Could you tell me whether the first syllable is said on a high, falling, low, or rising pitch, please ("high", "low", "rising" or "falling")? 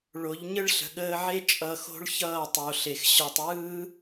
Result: rising